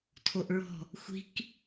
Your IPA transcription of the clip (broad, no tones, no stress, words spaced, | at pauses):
tʰoʔɹɔ̤ | xʷi̤k